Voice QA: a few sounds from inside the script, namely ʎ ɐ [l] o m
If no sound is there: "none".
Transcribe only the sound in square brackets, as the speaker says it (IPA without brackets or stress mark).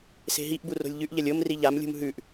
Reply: lʲ